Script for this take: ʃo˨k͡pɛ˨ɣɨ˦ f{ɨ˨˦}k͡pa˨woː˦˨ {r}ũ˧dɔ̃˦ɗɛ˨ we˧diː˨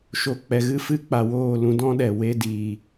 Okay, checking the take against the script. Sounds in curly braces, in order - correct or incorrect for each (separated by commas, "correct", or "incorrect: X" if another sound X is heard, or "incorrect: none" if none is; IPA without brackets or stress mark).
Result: incorrect: ɨ˦, incorrect: l